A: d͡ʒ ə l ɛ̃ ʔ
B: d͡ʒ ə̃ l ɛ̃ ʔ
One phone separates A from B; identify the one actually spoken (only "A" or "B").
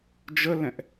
A